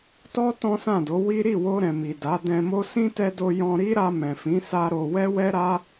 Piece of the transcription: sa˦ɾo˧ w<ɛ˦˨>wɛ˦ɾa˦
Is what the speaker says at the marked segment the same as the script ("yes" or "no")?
no